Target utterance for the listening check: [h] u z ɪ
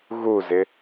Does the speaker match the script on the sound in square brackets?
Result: no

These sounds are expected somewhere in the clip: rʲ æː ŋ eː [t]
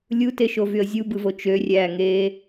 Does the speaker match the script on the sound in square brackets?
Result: no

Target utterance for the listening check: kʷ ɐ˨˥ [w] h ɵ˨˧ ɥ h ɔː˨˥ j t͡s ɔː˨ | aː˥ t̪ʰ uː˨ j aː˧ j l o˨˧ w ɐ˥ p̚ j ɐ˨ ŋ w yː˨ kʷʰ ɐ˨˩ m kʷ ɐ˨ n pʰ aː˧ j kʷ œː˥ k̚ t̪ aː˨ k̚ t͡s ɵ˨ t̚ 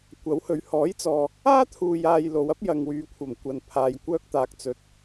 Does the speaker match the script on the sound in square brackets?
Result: yes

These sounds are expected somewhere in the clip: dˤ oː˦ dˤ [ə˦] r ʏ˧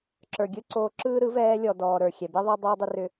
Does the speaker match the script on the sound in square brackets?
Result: no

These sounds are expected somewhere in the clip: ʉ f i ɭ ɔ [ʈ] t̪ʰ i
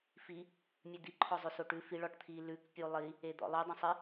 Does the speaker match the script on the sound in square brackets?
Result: yes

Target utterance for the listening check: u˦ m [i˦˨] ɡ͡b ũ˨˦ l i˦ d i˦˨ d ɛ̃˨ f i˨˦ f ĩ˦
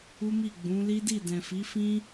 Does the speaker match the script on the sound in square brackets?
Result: yes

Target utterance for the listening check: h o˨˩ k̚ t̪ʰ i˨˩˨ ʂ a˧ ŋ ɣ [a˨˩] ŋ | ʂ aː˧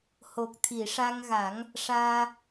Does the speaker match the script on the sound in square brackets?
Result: no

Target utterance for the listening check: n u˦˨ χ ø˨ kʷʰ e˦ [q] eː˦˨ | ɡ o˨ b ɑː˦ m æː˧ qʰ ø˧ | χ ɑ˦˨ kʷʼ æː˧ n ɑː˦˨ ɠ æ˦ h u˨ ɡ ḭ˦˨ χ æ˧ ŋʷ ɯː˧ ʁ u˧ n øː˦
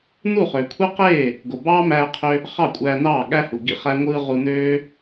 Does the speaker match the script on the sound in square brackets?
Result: yes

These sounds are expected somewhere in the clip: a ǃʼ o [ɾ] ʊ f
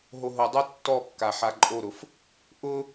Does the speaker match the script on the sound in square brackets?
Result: yes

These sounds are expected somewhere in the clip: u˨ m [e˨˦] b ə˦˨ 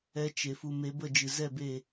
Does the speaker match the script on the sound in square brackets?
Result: yes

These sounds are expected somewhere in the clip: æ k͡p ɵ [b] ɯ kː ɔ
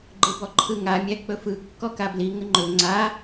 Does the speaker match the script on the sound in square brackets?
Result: no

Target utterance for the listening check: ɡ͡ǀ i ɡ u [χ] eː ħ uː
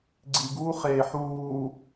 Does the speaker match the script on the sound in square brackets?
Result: yes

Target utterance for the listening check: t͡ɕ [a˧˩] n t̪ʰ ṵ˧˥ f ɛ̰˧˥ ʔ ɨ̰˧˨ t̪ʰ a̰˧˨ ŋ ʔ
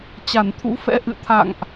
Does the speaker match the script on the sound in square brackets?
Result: yes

